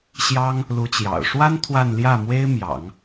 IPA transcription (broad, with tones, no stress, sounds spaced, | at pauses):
ɕ j ɑ˥ ŋ | l u˧˥ t͡ɕ j ɑ̰˨˩ ʊ̯ ʂ w a˥ n t̪ʰ w a˥˧ n l j ä˥˩ m w e˥ ɪ̯ m j ɑ̰˨˩˦ ŋ